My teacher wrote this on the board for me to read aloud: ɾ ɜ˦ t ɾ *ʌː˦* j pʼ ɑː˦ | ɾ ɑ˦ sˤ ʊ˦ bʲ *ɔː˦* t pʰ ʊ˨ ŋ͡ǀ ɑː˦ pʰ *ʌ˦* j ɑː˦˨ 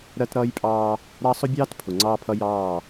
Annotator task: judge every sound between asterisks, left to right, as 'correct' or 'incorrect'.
correct, incorrect: ɑː˦, correct

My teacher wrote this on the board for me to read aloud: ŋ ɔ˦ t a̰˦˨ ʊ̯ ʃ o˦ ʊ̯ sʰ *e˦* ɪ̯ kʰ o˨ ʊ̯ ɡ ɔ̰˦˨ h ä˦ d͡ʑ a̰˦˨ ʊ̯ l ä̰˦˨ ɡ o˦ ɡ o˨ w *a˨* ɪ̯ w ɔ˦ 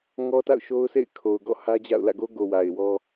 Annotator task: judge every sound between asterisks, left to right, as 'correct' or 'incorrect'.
incorrect: ḛ˦˨, correct

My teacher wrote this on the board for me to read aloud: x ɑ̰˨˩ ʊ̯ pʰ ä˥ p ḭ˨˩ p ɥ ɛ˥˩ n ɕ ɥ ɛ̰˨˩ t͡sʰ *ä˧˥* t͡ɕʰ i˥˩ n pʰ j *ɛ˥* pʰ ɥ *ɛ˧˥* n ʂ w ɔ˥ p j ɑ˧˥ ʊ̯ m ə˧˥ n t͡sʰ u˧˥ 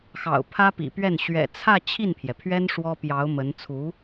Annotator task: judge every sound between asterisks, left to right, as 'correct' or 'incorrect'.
incorrect: ä˥˧, incorrect: ɛ˩, incorrect: ɛ˥

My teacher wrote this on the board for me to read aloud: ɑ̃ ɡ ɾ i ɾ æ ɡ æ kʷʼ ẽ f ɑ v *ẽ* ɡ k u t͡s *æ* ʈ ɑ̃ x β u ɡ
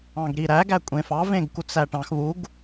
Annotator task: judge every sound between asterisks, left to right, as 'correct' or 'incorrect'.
correct, correct

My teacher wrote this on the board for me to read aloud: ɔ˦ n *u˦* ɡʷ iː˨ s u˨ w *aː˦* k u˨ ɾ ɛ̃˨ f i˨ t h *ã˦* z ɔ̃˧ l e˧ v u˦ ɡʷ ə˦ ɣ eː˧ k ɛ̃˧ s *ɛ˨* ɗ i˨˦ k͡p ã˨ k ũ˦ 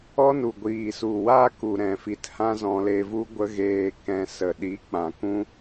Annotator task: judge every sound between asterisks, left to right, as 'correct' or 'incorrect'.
incorrect: u˨, correct, correct, incorrect: ə˨

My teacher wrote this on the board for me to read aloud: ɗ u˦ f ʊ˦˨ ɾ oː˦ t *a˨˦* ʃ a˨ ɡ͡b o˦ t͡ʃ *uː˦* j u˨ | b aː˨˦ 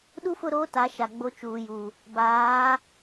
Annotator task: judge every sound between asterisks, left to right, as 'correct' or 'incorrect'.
correct, incorrect: uː˨

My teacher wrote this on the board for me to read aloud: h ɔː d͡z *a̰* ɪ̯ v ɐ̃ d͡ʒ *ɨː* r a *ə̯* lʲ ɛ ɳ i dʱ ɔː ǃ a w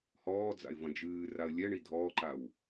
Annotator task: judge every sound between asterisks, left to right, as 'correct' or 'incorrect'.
correct, correct, correct

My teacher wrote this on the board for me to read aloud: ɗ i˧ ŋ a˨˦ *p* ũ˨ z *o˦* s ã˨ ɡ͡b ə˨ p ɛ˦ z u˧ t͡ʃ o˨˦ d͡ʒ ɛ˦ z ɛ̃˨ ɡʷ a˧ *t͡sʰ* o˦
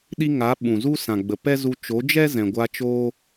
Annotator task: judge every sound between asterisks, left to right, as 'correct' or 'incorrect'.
incorrect: ɓ, incorrect: u˦, incorrect: t͡ʃ

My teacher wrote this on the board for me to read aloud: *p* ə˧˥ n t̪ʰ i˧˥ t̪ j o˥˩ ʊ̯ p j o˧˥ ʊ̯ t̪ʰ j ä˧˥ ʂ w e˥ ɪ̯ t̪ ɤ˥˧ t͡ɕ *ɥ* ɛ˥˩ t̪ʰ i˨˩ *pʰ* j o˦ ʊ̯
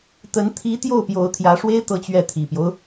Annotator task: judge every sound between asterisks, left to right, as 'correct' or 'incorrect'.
incorrect: t̪, correct, incorrect: p

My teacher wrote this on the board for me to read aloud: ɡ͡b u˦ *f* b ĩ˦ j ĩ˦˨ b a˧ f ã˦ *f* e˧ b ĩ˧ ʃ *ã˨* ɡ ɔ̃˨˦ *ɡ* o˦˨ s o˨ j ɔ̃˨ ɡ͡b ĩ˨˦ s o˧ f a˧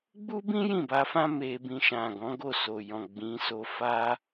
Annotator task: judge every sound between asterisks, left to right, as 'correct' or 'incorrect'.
incorrect: none, incorrect: m, correct, correct

